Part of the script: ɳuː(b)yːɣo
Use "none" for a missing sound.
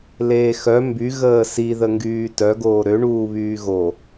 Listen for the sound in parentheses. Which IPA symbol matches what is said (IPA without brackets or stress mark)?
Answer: β